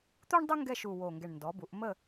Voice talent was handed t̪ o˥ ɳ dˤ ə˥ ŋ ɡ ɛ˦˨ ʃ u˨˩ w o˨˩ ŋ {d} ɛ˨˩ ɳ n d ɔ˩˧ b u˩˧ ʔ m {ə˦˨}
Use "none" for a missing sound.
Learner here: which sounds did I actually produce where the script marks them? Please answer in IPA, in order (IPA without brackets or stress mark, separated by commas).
ɡ, ə˦˨